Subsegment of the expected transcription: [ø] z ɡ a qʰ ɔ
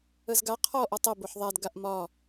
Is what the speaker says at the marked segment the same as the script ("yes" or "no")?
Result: no